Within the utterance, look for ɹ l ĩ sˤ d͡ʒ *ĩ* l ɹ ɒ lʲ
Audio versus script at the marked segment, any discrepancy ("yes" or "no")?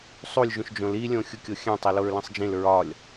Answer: no